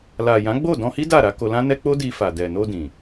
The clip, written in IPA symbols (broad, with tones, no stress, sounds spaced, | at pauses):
l a˨ j ã˨˦ ɡ͡b o˦˨ d ɔ̃˧ h i˦ d a˦˨ ɾ a˨˦ k o˧ l ã˦ n ɛ˦ k͡p o˦ d i˧ f a˨ d ɛ˨ n o˧ d ĩ˨